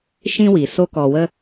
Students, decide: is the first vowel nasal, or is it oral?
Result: nasal